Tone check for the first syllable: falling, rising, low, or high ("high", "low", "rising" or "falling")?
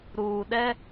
low